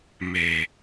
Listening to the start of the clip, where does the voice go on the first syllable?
low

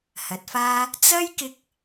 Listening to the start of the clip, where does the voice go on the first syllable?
rising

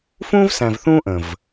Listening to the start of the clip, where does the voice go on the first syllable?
high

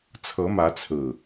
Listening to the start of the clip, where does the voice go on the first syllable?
rising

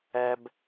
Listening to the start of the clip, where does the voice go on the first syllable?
high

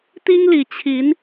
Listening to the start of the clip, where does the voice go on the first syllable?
high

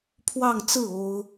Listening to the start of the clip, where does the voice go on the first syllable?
falling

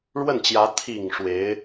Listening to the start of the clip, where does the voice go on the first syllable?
falling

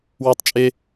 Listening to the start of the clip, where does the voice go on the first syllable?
high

